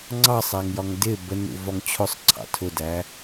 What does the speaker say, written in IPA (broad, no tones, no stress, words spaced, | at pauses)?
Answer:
ŋ͡ǀɑsˤæŋjɒŋ dɪ bənṵvɒŋ t͡ɕʰʊsˤǀʰɑ̰ tʰʊdæ